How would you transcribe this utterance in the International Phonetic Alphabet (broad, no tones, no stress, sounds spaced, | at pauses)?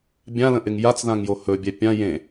bʲ ã l ə̃ ʔ ɪ ŋ j a t͡s ð ã ŋ j o h ɵ bʲ ɛ pʲ ã j ẽ